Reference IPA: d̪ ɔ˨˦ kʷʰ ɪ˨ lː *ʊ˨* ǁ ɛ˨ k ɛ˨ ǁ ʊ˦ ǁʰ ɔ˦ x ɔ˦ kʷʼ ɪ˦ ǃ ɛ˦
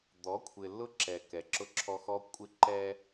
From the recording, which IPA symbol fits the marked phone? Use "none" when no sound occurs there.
ʊ˦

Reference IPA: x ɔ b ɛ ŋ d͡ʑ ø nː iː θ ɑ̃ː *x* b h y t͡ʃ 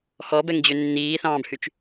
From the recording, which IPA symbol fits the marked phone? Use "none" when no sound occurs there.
none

